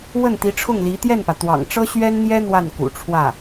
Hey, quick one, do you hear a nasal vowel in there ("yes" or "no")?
no